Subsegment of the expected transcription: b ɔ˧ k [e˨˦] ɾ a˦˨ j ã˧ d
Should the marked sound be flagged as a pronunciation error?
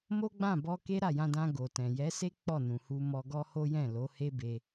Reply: yes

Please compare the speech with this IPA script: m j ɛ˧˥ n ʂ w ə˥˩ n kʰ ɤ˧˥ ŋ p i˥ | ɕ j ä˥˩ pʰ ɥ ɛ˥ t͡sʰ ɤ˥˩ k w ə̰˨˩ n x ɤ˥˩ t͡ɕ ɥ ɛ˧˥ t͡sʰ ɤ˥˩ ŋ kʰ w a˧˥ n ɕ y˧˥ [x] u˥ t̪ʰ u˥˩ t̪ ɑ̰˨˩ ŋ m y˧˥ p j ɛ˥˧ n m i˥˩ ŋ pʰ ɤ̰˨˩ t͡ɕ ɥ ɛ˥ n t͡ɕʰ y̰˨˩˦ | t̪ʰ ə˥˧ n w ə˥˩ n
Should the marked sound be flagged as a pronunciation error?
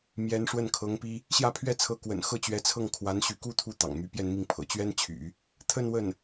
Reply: yes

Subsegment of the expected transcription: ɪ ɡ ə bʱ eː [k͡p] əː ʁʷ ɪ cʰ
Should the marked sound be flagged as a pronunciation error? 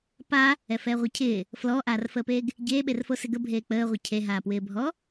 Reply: no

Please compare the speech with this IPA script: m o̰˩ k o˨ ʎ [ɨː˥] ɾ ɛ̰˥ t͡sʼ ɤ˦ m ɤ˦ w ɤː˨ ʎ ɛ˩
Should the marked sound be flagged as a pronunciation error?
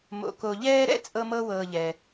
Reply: yes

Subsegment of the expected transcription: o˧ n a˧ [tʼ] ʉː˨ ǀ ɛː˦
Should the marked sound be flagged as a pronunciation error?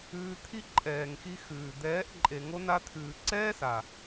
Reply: yes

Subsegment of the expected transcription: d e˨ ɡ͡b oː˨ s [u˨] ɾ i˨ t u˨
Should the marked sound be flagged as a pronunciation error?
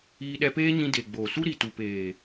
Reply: yes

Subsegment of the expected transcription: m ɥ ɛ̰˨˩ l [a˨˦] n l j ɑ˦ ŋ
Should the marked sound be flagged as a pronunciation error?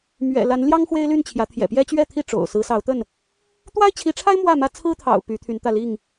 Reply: no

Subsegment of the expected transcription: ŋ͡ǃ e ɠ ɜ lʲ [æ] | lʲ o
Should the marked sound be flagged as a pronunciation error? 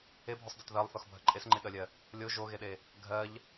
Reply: yes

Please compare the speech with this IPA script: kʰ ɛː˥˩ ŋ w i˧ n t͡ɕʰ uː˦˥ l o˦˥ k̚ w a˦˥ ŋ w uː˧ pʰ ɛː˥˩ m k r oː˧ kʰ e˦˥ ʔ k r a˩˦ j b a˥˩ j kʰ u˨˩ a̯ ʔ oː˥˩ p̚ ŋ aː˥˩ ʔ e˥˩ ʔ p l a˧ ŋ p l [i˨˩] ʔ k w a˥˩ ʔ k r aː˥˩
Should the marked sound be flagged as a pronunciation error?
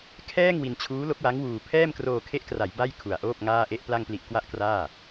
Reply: no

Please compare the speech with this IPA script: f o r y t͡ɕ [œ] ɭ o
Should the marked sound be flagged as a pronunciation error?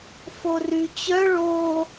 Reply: no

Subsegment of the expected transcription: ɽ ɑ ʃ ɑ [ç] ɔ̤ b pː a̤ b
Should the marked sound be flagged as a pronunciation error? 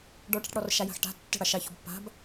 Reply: no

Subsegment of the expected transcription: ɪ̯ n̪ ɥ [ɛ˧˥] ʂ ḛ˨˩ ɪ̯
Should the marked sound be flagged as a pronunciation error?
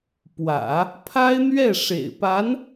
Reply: yes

